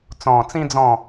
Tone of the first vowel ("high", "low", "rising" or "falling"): low